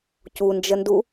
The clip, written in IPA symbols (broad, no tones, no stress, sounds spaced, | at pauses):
c u n d͡ʒ ə n d u